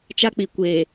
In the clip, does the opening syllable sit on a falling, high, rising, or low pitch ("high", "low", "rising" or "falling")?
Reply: high